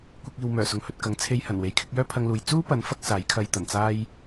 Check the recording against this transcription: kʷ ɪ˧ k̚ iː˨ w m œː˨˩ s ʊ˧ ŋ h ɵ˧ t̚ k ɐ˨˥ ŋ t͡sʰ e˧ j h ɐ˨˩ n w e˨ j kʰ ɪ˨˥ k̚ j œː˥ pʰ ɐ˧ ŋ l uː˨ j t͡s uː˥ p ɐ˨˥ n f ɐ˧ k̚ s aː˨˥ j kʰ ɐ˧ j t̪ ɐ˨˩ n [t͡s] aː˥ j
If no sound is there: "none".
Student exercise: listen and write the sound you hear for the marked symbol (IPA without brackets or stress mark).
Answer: t͡s